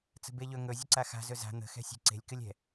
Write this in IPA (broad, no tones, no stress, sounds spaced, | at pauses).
t͡s ə̤ b e ʎ ɵ ŋ ɵ zʲ ə ǀ a x a̤ z ɵ z a̤ n̪ ə̤ x ɛ̤ sʲ e̤ ǀ e̤ lʲ k ɨ lʲ ɛ̤